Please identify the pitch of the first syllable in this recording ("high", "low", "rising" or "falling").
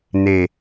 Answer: low